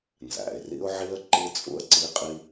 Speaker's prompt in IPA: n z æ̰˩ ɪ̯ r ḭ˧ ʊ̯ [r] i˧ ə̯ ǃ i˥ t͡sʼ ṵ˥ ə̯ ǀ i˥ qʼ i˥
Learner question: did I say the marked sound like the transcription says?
no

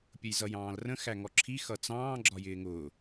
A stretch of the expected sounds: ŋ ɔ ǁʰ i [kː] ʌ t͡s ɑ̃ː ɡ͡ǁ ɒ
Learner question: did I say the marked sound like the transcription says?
no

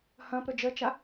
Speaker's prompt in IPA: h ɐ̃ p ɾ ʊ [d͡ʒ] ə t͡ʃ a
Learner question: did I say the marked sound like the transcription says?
yes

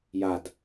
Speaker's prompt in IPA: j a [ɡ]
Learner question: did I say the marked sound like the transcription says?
no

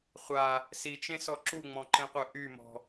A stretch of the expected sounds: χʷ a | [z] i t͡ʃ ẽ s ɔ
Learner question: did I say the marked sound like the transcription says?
no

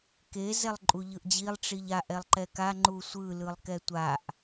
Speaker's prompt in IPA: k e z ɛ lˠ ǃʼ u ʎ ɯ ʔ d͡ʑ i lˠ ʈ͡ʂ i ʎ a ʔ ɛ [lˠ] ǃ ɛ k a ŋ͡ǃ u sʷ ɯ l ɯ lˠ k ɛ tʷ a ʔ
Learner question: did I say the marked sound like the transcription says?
yes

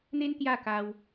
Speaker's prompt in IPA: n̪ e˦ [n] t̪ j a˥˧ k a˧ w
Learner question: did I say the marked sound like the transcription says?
yes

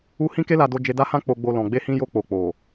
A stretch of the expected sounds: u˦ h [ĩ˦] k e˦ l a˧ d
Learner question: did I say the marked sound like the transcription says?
yes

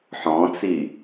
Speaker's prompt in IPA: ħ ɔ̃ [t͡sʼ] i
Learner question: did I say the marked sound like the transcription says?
no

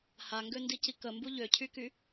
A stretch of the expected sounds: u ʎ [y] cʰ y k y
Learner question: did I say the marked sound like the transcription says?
no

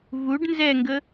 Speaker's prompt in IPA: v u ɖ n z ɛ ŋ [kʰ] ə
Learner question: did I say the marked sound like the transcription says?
no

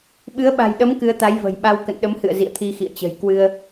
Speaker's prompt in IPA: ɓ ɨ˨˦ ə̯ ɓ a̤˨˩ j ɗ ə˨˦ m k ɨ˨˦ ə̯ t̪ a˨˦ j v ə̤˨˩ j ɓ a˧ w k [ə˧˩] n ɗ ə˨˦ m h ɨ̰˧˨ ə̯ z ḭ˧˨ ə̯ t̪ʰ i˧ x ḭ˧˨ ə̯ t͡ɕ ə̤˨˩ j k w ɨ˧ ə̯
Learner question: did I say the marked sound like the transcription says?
no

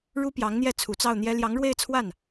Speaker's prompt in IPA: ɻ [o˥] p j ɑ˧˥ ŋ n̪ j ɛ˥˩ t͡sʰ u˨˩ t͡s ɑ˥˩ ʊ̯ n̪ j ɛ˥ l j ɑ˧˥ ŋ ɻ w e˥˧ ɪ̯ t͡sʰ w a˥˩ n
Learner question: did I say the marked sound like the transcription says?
no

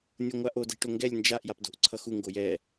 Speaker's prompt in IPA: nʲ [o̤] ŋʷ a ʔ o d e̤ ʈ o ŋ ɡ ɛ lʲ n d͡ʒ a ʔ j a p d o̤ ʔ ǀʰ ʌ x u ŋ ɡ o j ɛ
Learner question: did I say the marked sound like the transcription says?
no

